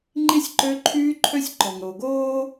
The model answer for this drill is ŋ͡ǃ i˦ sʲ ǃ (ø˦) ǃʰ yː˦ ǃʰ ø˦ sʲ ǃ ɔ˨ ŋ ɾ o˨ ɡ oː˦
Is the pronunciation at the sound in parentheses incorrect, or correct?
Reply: correct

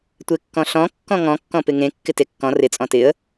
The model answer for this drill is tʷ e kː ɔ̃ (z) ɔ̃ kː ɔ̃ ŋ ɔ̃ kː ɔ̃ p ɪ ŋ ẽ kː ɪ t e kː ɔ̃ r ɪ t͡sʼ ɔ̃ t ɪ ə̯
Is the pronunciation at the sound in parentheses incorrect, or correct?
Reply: incorrect: ɬ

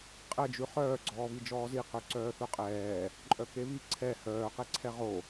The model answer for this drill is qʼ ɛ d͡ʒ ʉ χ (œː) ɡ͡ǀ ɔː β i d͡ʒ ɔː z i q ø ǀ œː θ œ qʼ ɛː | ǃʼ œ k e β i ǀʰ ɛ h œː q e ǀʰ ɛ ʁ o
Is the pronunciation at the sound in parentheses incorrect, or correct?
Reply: correct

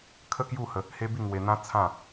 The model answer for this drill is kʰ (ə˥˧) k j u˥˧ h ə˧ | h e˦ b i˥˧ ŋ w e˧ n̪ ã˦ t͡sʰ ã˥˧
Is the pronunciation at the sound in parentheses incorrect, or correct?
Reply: correct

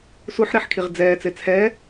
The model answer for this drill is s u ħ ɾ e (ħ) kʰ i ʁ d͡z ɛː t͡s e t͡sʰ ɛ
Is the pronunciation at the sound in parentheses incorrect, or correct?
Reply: correct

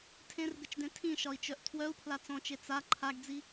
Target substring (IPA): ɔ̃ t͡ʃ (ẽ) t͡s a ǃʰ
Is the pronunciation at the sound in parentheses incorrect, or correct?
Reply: incorrect: e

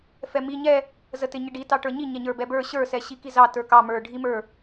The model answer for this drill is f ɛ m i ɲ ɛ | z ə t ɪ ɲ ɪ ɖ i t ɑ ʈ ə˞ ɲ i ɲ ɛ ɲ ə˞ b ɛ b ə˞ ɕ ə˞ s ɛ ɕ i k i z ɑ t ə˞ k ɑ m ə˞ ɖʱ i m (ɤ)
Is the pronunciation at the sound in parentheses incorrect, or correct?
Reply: incorrect: ə˞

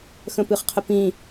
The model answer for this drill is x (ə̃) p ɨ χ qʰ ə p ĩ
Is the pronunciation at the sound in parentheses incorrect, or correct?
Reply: correct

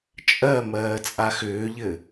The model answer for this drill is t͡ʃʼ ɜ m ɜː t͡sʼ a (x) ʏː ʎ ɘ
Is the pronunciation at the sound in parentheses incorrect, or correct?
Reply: correct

